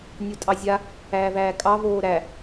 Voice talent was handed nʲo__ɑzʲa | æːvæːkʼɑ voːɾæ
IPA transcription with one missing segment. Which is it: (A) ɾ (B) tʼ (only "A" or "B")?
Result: B